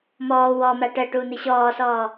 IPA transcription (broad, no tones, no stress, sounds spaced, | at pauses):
m ɔː w ɔ m a ʈ ɜ ʈ uː n̪ i ɕ ɔː s ɔː